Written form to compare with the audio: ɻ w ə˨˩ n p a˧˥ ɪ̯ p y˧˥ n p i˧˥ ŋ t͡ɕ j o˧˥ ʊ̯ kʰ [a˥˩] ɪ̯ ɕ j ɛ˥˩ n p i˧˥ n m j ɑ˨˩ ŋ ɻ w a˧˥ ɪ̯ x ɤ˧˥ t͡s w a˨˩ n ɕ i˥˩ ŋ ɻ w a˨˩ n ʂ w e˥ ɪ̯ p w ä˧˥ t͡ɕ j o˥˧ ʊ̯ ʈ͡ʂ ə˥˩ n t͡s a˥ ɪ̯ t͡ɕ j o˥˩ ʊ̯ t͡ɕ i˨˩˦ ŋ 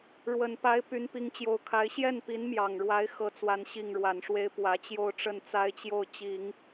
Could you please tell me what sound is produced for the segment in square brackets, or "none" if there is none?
a˧˥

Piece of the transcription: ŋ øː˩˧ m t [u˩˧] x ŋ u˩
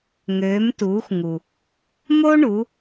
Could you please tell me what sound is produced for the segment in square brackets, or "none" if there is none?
uː˩˧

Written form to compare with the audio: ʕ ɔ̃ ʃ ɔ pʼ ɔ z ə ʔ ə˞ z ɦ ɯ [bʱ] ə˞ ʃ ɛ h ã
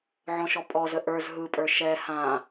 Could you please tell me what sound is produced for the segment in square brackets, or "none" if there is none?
pʼ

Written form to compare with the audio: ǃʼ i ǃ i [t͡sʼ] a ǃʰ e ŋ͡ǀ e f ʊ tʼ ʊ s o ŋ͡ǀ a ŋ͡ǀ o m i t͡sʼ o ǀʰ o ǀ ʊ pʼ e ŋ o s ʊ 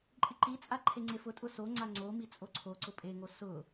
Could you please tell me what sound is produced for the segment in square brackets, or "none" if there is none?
t͡sʼ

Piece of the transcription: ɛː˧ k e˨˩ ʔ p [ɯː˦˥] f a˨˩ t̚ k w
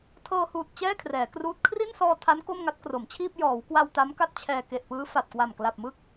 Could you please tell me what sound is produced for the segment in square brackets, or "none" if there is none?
ɯː˦˥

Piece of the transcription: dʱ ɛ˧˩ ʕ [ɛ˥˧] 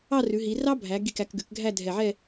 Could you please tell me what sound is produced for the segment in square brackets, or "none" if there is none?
ɛ˥˧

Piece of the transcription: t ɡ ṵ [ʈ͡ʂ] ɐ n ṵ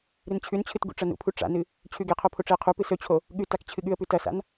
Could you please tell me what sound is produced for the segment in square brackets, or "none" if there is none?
ʈ͡ʂ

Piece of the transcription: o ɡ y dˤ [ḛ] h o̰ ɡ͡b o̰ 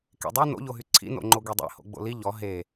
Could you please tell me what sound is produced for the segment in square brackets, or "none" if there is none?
ḛ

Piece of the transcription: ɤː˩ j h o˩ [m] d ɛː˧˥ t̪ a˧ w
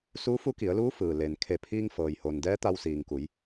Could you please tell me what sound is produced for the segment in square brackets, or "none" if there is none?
n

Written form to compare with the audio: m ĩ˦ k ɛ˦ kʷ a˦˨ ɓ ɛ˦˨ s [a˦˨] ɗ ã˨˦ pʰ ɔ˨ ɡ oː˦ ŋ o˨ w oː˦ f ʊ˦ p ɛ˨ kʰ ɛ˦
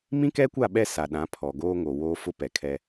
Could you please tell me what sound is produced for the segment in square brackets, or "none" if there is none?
a˨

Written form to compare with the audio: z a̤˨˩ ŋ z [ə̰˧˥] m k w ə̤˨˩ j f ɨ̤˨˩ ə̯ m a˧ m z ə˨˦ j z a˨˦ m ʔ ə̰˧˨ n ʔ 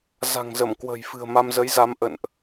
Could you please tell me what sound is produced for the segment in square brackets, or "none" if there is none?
ə˧˩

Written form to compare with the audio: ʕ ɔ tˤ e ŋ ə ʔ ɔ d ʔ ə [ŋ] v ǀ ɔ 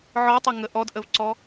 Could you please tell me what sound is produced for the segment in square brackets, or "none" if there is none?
none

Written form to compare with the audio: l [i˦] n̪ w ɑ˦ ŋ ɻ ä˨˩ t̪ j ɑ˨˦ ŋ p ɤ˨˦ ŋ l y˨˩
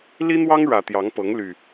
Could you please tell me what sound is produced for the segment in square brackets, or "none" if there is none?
i˦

